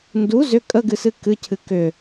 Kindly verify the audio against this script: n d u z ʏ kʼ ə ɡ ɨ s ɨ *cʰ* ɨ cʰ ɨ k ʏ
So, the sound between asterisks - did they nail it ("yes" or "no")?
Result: no